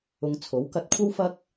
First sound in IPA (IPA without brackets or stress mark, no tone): ʊ